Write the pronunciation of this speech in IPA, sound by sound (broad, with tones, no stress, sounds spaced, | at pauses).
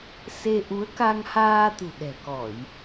s e˧ ʔ u˨˦ ə̯ k a˧ ŋ h aː˧ t̪ ṳ˨˩ ɗ ɛ̤˨˩ k ɔ˧˩˨ j